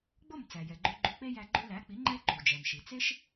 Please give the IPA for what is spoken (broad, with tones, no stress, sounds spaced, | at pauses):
ɡ͡b o˥˩ m t͡s æ˩ j ɛ˩ ɡ͡ǃ ʉ˧ ɡ͡ǃ ʉ˧ k͡p e˥ j æ˧ ɡ͡ǃ ʉ˧ l æ˩˥ k͡p i˩˥ ŋ͡ǃ ɛ˥ ǃ u˩ d͡ʒ ɛ˩ m ʃ i˩ t͡s e˥ ʃ